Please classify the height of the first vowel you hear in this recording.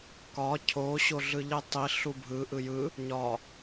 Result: low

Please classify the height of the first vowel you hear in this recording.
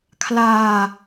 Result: low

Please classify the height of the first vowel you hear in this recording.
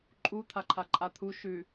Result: high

